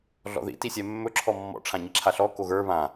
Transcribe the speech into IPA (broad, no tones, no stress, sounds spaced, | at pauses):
ɮ ɔ̰ ð ḭ t i sʲ ɛ mː ɵ ǁʰ ɔ mː ɔ̰ ʈ͡ʂʰ ã ɲ i ǁʰ a ɬ ɔ k o ɣ ə˞ β ã